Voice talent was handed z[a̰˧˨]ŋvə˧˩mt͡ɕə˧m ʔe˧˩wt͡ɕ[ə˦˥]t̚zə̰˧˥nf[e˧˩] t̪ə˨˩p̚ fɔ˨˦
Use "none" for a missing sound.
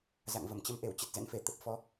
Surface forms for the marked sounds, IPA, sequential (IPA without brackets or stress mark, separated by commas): a̰˧˨, ə˨˩, e˧˩